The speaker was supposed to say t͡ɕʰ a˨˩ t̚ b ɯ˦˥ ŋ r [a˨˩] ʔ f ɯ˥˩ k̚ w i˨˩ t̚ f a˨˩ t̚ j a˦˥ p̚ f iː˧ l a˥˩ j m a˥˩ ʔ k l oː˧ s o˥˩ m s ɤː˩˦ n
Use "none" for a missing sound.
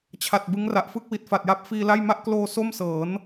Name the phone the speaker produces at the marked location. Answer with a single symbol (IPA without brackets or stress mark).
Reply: a˨˩